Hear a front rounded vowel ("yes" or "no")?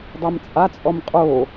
no